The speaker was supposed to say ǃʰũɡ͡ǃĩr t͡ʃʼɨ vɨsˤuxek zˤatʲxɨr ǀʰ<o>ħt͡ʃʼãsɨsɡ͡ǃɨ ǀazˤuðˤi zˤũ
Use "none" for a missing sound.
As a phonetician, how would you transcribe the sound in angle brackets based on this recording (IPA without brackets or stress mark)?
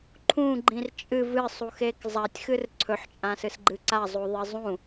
ɵ